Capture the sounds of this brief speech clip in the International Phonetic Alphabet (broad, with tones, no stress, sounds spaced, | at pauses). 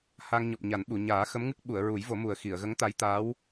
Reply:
h a˧ ŋ ɲ ɔ˨˩ p̚ ɲ a˨˩˦ n ɓ u˨˩˨ ɲ aː˨˩˦ x ə˧˥ m ŋ ɨ˦˥ k̚ ɓ u˨˩˨ ə̯ ɹ u˨˩˦ j v o˨˩˦ m u˨˩ ə̯ x i˨˩˨ ə̯ ɣ ə˧˥ ŋ t̪ a˧˥ j t̪ a˧˥ w